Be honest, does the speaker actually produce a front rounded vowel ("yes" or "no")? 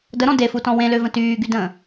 yes